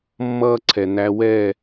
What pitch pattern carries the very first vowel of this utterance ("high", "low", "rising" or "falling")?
high